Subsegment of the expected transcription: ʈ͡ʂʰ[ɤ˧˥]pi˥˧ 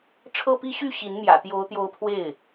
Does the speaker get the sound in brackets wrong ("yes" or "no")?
yes